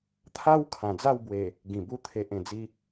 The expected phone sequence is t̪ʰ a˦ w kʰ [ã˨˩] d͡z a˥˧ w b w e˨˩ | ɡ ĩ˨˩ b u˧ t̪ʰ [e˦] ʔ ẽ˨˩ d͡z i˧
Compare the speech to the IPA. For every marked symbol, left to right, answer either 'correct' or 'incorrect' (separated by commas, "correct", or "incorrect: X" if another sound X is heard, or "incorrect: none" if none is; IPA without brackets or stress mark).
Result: correct, incorrect: e˨